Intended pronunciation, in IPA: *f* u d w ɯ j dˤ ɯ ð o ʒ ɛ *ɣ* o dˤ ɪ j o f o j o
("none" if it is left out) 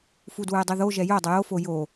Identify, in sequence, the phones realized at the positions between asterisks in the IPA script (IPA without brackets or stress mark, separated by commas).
f, j